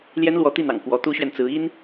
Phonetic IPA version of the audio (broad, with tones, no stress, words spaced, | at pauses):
ljɛ˥nlwɔ˧˥t̪i˥˩n̪ɑ̰˨˩ŋ kwɔ˧˥t̪u˥ɕɥɛ˨nt͡sɹ̩˧˥ i˥n